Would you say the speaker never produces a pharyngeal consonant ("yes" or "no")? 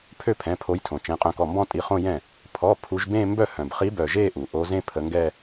yes